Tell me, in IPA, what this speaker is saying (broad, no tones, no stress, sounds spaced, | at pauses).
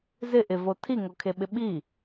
z ɪ ʔ ɪ v o tʰ i ŋ o kʰ e ɓ ɪ ɓ i